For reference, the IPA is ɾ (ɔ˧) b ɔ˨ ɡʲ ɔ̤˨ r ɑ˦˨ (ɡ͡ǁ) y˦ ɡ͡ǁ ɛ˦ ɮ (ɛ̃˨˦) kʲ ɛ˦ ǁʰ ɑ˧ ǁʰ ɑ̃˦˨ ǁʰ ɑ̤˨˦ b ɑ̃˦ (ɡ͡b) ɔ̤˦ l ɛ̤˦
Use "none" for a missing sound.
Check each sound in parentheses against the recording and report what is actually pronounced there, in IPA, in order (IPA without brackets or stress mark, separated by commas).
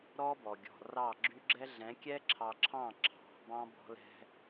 ɔ˦, ɡ͡ǁ, ɛ̃˨˦, b